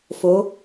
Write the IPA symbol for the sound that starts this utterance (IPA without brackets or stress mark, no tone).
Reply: f